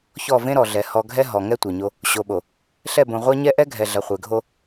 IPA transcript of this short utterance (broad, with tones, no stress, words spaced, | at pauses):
çɔ˦˨ vẽ˦ɾɔ˨ɮɛ˨ hɔ˨ɡʱɛ˦ ɦɔ˨ ŋɛ˦ tʷɛ˨ɲo˦ | ɕo˨ɓo˨ | ɬɛ˦˨bõ˨ʁʷa˦ɲɛ˦ ʔɛ˦ ɡʱɛ˨ɮɐ˨χʷe˨ɡʱo˦